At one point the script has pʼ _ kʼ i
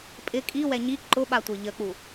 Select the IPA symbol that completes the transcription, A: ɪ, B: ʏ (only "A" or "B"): A